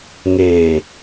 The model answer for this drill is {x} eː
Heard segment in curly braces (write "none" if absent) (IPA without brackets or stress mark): ŋ